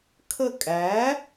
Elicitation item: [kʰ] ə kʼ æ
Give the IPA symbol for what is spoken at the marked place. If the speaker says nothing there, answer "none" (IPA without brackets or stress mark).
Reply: kʰ